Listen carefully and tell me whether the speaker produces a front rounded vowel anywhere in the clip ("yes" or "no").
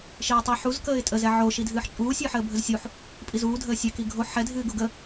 no